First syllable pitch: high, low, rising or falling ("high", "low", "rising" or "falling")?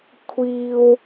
high